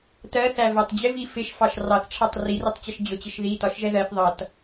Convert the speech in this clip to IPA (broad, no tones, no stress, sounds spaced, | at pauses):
t ɜ θ æ v ɛ tˤ d͡ʑ ɪ v i f ɪ ʃ f ɑ ʃ r ɑ θ ʈ͡ʂʰ æ tˤ r i r i tˤ t͡ɕ ʌ ʃ d͡ʑ ʊ t͡ɕ ɪ ʃ ð i t ɒ ʃ ʒ ɛ ð ɜ θ ðˤ ʌ t